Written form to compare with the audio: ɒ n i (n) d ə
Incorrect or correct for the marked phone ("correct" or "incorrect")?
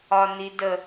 incorrect